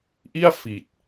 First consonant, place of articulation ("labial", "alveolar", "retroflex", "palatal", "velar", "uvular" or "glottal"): glottal